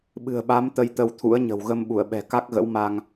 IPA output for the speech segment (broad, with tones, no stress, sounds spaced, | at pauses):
ɓ ɨ̤˨˩ ə̯ ɓ a˨˦ m t̪ ə˧ j t̪ ə˧ w t̪ʰ ṵ˧˥ ə̯ ɲ ə̤˨˩ w ɣ ə˧ m ɓ u˧˩ ə̯ ɓ ɛ̤˨˩ k a˦˥ k̚ ɣ ə̰˧˥ w m a˧ ŋ